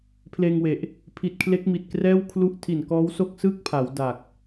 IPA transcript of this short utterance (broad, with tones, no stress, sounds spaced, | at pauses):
pʰ l eː˧ ŋ w e˨˩ ʔ | pʰ i˨˩ t̚ kʰ l e˦˥ k̚ m i˨˩ t̚ k r ɛː˥˩ w kʰ l u˥˩ ʔ tʰ i˨˩ n k ɔː˦˥ w s o˥˩ k̚ s ɯː˥˩ k̚ pʰ aː˩˦ w d a˨˩ k̚